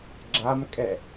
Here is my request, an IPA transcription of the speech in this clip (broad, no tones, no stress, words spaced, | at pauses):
ɡ͡ǁamkʼɛ